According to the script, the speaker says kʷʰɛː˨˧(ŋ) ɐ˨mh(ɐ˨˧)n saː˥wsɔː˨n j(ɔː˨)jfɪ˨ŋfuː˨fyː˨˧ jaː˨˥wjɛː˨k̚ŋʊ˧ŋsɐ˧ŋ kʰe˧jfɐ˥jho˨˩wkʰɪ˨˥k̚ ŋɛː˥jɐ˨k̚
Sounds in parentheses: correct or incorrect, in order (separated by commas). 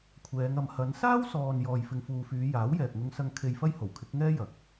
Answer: correct, correct, correct